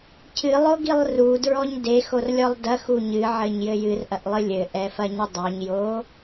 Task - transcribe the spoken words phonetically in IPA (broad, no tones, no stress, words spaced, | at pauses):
cʰɨlˠoɡilˠ rudɹɔɲ dexorlʲɔlˠ dɐxu ɲɨʕɘɲjɘ jɨrʔɐʔlˠɨ lʲɘʔɛfɐɲɘ dˤoɲjo